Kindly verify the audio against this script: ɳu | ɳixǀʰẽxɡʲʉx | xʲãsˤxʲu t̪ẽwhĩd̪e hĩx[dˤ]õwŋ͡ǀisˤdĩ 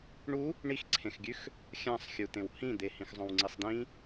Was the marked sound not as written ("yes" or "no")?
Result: yes